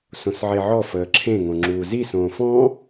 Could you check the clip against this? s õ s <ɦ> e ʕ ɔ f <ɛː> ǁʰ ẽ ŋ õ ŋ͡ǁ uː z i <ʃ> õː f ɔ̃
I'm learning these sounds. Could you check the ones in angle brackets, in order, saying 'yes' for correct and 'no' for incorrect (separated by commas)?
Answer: no, no, no